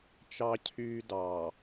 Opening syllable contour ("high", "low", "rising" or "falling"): high